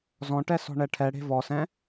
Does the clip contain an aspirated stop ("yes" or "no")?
yes